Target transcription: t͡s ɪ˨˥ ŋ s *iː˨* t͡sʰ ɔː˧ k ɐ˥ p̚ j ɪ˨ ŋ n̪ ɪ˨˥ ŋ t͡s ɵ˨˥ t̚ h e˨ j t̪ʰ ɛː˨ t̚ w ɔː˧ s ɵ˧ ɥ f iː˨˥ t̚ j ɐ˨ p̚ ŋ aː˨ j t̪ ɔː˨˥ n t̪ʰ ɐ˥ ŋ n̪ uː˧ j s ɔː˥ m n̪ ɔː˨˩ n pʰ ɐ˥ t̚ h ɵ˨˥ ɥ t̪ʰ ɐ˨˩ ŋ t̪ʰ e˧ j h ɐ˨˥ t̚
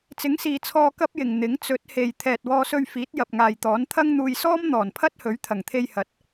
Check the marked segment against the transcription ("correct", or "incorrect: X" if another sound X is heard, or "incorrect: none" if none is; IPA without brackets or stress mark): correct